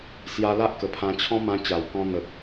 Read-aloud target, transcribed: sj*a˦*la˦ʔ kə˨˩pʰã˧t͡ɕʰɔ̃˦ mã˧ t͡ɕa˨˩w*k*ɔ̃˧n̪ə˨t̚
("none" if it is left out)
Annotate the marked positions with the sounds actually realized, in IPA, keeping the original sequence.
a˧, k

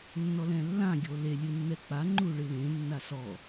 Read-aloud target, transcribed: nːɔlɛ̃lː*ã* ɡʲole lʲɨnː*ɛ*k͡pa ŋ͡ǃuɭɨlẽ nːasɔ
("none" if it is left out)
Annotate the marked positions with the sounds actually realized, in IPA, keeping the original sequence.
ã, ɛ

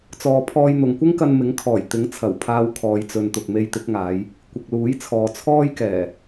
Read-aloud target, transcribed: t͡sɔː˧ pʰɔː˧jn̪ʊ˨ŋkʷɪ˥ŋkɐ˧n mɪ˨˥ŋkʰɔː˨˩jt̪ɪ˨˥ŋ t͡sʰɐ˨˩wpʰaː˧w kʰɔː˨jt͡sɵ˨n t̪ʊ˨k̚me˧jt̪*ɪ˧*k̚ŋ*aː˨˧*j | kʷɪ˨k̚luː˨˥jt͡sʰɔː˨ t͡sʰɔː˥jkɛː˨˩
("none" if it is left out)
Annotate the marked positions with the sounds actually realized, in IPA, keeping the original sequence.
ɪ˨˥, aː˨˧

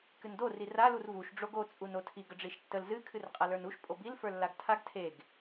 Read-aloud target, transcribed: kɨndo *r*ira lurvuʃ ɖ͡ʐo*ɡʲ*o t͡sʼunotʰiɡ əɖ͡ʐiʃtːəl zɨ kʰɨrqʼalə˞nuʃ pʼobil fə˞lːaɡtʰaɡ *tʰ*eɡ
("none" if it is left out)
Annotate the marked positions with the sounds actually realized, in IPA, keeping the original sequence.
r, ɡ, tʰ

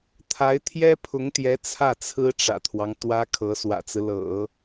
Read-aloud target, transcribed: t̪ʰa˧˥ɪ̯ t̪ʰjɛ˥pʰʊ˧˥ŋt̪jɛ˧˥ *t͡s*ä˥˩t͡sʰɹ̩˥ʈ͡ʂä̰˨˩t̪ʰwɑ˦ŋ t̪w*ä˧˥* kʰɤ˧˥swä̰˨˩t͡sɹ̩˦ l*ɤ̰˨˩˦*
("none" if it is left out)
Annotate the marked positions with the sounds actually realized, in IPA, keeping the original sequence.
t͡sʰ, ä˥, ɤ̰˨˩˦

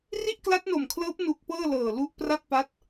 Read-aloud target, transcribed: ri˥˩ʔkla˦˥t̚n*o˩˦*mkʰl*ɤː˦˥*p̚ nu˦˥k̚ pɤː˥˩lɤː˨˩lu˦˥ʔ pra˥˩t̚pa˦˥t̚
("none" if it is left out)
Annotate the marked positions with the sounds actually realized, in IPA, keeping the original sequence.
o˨˩, ɤː˦˥

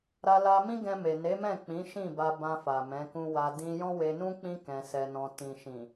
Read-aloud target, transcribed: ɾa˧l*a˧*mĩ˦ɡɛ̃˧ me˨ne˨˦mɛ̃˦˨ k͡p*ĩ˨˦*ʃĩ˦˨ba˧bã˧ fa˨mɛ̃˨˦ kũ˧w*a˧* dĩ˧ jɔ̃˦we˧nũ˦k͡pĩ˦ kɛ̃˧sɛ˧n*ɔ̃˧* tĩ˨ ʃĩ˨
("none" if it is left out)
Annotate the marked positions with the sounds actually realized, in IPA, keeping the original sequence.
a˧, ĩ˨˦, a˧, ɔ̃˧

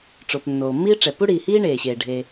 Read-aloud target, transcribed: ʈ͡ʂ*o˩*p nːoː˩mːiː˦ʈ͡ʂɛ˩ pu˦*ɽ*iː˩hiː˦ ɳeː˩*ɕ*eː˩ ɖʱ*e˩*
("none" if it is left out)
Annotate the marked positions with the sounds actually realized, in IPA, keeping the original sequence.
o˩, ɽ, ɕ, e˩

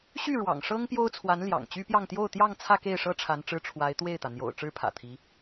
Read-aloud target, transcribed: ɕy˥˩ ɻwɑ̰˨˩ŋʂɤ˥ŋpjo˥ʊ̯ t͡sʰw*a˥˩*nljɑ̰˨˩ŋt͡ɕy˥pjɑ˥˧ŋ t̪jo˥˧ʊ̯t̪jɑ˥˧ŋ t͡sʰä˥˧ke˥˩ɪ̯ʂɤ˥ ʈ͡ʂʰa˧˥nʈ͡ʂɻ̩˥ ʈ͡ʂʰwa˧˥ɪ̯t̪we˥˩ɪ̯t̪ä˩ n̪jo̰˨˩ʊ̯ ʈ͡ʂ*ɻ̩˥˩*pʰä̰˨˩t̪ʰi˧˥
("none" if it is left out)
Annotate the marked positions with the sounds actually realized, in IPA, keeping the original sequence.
a˧˥, ɻ̩˥

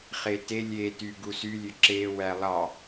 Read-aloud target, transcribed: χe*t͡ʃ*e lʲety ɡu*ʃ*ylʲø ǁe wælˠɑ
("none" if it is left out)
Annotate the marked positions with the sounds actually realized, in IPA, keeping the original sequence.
t, s

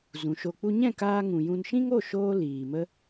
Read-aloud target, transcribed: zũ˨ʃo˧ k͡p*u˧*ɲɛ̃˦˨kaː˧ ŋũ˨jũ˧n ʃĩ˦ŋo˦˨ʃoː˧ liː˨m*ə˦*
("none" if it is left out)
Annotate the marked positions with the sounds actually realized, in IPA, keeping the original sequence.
u˧, ə˦

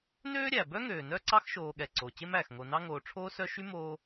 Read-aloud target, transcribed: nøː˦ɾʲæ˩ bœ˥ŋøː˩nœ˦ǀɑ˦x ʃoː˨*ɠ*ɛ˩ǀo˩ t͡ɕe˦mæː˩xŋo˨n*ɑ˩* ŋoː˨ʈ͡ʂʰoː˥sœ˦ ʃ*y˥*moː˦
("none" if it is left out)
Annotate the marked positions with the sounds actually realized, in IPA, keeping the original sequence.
ɠ, ɑ˦, y˥

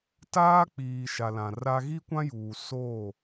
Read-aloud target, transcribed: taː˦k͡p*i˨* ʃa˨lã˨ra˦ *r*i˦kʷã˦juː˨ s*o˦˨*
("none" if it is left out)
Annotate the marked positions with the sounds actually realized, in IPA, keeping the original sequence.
iː˨, ɣ, o˦˨

